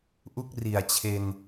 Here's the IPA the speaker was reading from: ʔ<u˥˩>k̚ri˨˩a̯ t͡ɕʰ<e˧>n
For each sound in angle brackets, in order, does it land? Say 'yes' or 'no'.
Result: yes, yes

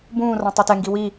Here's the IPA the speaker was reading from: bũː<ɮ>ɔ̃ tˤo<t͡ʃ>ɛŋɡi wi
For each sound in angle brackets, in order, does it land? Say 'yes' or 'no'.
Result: no, no

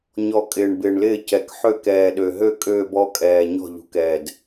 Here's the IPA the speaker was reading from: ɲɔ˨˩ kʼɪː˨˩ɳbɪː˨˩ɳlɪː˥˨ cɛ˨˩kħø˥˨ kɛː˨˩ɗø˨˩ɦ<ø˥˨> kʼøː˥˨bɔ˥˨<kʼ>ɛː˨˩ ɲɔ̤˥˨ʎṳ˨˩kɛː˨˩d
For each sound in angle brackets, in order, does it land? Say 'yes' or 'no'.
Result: yes, yes

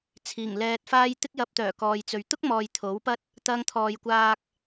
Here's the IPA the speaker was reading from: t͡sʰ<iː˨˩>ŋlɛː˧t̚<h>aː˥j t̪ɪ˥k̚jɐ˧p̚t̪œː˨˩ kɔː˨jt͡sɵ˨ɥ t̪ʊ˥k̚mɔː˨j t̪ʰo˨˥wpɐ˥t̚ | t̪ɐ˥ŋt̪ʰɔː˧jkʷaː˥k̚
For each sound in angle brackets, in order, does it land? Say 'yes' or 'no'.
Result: yes, no

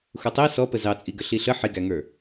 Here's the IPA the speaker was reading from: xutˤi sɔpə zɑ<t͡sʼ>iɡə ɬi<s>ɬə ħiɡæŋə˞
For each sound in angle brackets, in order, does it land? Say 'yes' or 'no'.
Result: yes, no

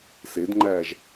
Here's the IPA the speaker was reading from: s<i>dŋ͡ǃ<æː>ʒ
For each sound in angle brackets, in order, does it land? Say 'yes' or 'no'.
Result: no, yes

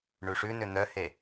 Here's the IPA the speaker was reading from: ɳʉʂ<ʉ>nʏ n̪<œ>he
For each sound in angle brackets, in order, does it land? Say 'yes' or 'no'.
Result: yes, yes

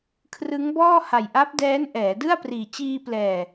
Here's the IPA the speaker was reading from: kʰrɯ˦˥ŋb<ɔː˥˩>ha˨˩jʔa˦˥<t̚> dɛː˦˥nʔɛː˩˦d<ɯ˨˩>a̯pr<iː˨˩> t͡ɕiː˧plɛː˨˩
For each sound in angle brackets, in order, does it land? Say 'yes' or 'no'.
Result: yes, no, no, yes

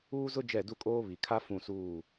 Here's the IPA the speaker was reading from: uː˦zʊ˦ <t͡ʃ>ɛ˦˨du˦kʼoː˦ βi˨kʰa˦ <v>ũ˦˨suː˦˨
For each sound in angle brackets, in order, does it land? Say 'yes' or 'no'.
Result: no, no

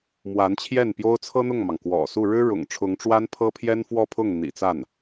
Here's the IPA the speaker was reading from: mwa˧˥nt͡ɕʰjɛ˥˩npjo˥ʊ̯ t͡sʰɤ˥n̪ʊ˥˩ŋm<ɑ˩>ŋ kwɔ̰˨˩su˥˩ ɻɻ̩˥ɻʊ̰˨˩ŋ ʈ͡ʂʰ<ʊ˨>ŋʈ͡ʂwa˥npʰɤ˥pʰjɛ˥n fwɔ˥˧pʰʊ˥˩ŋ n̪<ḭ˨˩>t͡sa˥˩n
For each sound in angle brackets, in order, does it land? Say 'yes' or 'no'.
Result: yes, no, yes

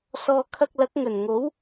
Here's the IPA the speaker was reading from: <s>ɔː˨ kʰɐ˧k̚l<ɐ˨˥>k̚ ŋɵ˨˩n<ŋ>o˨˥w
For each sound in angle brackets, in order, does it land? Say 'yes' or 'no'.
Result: yes, yes, yes

